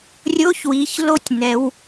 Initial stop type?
plain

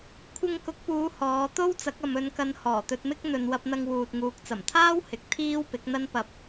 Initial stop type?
aspirated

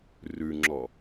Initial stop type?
click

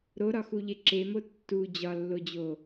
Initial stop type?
click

